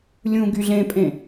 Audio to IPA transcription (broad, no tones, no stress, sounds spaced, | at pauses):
lʲ ũ ɡ y ɮ ẽ pʼ ẽ